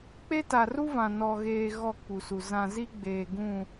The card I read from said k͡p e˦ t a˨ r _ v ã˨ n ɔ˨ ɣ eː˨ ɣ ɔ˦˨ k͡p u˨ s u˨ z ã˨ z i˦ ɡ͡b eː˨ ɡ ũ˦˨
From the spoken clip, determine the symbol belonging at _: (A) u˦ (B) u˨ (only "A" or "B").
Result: A